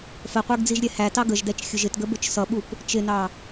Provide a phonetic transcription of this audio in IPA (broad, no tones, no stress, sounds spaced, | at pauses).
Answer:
f ə qʷ ə˞ ɡ d͡z i ʒ ɾʲ ɛ h æ t ɑ ɡ ə ʒ d ɛ t͡ʃ xʲ ʊ ʒ ɪ t ɡ ə b ʊ t͡ʃ s ʌ ɓ u p | t͡ʃ ɪ n ɑ